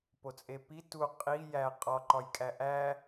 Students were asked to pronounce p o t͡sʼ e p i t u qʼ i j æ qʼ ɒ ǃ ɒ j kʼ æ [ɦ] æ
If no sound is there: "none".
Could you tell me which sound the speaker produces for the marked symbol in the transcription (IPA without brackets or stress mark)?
ʔ